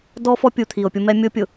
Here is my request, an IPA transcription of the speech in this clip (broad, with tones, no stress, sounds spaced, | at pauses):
d ɔ˦ f ɔ˦ pʲ u˨ t̪ʰ i˨ o̯ pʲ ʊ˦ m ɛ˦ mʲ o˦ pʲ ʊ˨